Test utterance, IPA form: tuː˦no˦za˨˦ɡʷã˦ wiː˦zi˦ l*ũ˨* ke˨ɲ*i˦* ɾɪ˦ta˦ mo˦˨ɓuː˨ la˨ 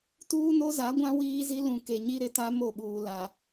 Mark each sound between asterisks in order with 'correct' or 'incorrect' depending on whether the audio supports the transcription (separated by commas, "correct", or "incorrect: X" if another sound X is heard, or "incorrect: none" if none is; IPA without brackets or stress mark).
correct, correct